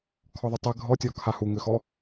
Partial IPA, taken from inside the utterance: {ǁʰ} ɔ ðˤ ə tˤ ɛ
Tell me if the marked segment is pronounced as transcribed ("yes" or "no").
no